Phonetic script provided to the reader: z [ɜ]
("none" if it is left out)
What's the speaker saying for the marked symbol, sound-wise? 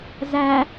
æ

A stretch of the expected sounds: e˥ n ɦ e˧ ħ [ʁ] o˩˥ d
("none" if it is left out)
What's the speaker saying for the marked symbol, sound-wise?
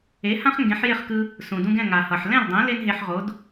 ʁ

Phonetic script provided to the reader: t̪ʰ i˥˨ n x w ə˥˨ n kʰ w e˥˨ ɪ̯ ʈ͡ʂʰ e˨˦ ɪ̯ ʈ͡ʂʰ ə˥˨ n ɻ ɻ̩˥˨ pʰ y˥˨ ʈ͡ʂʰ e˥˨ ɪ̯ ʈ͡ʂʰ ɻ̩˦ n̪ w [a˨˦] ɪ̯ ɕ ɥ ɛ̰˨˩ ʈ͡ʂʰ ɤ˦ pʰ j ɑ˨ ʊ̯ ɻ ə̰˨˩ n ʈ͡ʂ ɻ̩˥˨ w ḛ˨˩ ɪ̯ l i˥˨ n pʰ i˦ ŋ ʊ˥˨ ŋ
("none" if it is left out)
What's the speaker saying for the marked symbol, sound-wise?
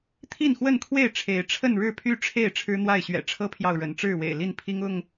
a˥˨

